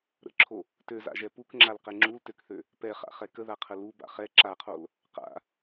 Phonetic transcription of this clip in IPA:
ɾ ə̰ ǁʰ o | t ø z a̰ ʒ ɛ p u k ŋ͡ǁ a l q ɛ ŋ͡ǁ u l t ø k θ ø | p ɛ χ a̰ χ ɛ k ə ð a qʰ ə l u b a̰ χ ɛ ǁ a qʰ o l | q a̰

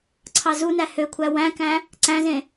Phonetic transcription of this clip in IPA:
ǀʰ ɑ z u n æ h ø kʷʰ æ w æ̃ k æ̃ | ǀ æ̃ z ẽ

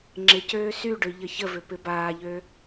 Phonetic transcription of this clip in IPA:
ŋ͡ǁ ɪ c øː s y ɖ ø ʎ ə ç ə v ʏ p ɪ b aː ʎ ø

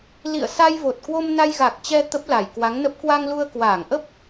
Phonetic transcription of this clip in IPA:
l ḭ˧˨ ə̯ s a˧ j v o˨˩ t̚ k w o˧ m n a˧ j ɣ a˨˩ k̚ t͡ɕ ɛ˧ t̪ ə˦˥ p̚ l a˧˩ j k w a˨˦ ŋ n ə˦˥ p̚ k w a˧ ŋ l u˧ ə̯ k w aː˧˩ ŋ ʔ ə˦˥ p̚

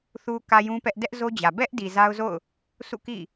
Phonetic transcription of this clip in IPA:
θ u˨ k ä˨ j ũ˦ p ɛ˦ ʔ d ɛ˦ ʔ z o˦ d͡ʑ ä˨ b ɛ˦ ʔ d i˨ z a˦ ʊ̯ z o̰˦˨ ʊ̯ | s ṵ˦˨ k ḭ˦˨

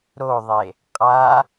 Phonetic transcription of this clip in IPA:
ɾ o ðˤ e | qʼ a

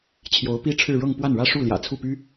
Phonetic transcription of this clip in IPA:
t͡ɕʰ j o˧˥ ʊ̯ p i˥ ʈ͡ʂʰ ɻ̩˥˧ ɻ ɤ˥˧ ŋ p w a˥˩ n ɻ ä˥ ʂ u˥˩ l j ä̰˨˩ t͡sʰ u˥˩ p y˥

